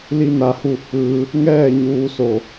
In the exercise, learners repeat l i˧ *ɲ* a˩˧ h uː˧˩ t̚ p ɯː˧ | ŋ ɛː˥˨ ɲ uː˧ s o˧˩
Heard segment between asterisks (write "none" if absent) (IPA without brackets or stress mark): n